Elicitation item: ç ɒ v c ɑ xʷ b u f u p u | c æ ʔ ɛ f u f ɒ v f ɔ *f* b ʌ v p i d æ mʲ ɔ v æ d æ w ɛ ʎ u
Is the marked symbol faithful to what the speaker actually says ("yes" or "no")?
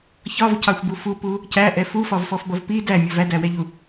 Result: yes